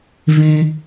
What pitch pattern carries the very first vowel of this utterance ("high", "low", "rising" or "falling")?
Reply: low